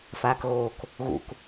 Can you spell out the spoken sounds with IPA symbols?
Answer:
f aː k ɣ oː k | ɣ ṵ k

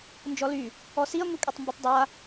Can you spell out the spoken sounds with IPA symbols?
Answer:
n d͡ʒ ɔ l y | ɔ s i ɐ̯ ŋʷ i kʷʼ e tˤ m b u tˤ dˤ a

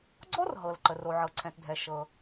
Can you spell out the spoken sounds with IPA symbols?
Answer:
ɡ͡ǀ ɔ˥ r ɦ ɤ˩ l ǃ ə˩ r o˩ ʕ ɤ˩ ǀʰ ɛ̃˩ t dʱ ɛ˩ ʃ ɤ˩

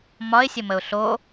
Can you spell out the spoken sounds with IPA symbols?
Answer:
m ɒ ɪ̯ sʲ ə m ə ʊ̯ ɬ o

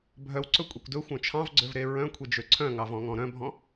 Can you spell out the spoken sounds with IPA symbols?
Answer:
bʱ œ w ǀ ɵ kʷʼ e kʷ d ɵ xʷ œ̃ t͡ʃʰ ɑ̃ v ɡ͡ǀ ø v ɾ e ɹ œ̃ kʷʰ e d͡ʒ ø ǀʰ œ̃ ŋ ɑ v ɔ̃ ŋ ɔ̃ ɾ œ̃ bʱ ɔ̃

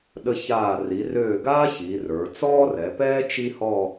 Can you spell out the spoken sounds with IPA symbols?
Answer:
ɗ ə˧ ç aː˧˩ r i˩˧ r øː˧˩ ɡ aː˥ ç i˩˧ r ə˞˩˧ t͡s ɔː˥ r ɛ˩˧ p ɛː˥ t͡ʃ i˥ h ɔ˥˧

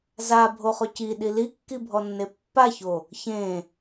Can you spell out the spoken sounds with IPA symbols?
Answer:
z a bʱ o χ ʊ c i ɗ i l i kː i bʱ ɔ nː e pː a ç o | ç ẽ

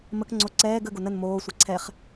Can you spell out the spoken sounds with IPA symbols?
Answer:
m ə k ŋ͡ǀ o ǀ ɛː ɡ ə ɡ o n ə n m oː sʷ a ǀʰ ɛ χ

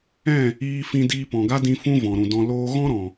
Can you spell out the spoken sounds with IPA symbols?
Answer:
ɛ̃˦˨ | iː˦ f ĩ˦ d iː˧ p ɔ̃˨ ɡ a˦ d ĩ˧ f ũ˦ v ɔ̃˨ ɾ ũ˨ d ɔ̃˧ l oː˦ ɣ ɔ̃˦ ɾ ɔ̃˨

